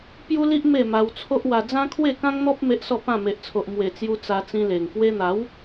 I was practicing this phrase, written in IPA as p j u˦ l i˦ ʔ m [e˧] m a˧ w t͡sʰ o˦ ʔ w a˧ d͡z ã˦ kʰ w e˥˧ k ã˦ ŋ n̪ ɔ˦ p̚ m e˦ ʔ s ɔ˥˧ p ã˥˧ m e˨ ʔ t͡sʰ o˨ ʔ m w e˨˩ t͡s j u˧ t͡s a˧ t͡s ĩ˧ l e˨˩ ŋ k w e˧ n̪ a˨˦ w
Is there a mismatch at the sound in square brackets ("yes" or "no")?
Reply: yes